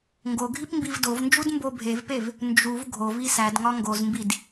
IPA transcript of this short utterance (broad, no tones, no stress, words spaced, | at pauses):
ŋɡoɡʱip mbivdovnd͡ʒud mbobʱevpev | nd͡ʒuv ɡʱovi sæd ŋɒŋɡozmbid